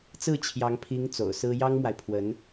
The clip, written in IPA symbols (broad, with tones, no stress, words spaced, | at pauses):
t͡sɹ̩˥˩t͡ɕʰjɑ˧˥ŋ pʰi˧˥ŋ t͡so̰˨˩ʊ̯sɹ̩˥ jɑ˥ŋmwa˨ɪ̯pʰwə˧˥n